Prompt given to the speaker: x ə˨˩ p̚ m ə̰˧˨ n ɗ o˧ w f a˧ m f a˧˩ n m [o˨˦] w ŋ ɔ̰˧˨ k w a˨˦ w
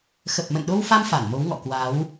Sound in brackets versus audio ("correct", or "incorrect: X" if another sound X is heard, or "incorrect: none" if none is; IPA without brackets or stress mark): correct